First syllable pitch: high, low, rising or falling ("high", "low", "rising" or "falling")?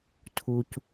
low